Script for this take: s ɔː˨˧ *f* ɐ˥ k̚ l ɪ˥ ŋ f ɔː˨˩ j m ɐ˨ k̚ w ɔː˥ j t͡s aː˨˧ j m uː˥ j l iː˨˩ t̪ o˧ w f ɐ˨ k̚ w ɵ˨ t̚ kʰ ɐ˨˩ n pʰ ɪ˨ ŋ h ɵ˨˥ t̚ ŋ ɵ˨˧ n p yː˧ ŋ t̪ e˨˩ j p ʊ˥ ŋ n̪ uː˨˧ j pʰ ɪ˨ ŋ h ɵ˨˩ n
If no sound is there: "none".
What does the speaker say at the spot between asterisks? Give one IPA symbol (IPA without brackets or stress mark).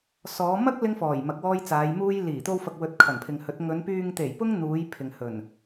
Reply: m